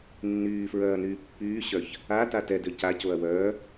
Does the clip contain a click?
no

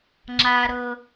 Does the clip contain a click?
yes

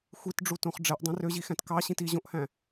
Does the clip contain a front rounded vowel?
yes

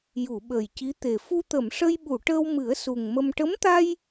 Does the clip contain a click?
no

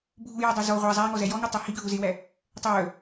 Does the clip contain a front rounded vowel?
yes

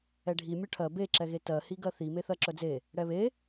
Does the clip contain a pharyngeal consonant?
no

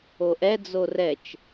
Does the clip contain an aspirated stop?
no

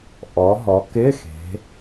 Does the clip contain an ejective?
no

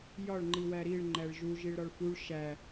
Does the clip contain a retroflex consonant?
yes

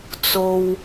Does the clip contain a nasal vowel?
no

